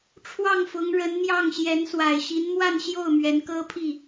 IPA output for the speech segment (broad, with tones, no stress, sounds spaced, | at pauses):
ʈ͡ʂʰ w ɑ˥˩ ŋ f ʊ˧˥ ŋ ɻ ə˧˥ n n̪ j ɑ˥˩ ŋ ɕ j ɛ˧˥ n s w a˨˩ ɪ̯ ɕ i˧˥ n m w a˥˧ n ɕ j o˥˩ ʊ̯ m ɥ ɛ˧˥ n k ɤ˥ pʰ i˥˩